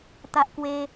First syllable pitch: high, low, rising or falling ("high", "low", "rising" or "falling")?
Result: high